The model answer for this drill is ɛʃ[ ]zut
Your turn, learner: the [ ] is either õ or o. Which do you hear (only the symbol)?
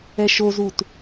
o